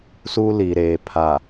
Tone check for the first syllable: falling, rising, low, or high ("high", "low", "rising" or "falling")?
high